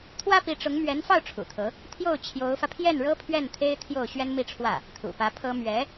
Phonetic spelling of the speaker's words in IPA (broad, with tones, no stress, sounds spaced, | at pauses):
t̪ʰ w ä˥ p i˧˥ ʈ͡ʂ ʊ˧˥ ŋ m ɥ ɛ˧˥ n f ɑ˥˩ ʊ̯ ʈ͡ʂʰ ṵ˨˩ t̪ʰ ɤ˧˥ | t̪ʰ j o˥˩ ʊ̯ t͡ɕʰ j o˧˥ ʊ̯ f ä˧ pʰ j ɛ˥˩ n ɻ ɤ˥ pʰ ɥ ɛ˥˩ n t̪ʰ e˥ ɪ̯ t̪ʰ j o˥˩ ʊ̯ ɕ ɥ ɛ˥ n m i˥˧ ʈ͡ʂʰ w ä˥˩ | t̪ʰ ṵ˨˩ p ä˧˥ pʰ ɤ˥ m ɥ ɛ˧˥